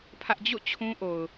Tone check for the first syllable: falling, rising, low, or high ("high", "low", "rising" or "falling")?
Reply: high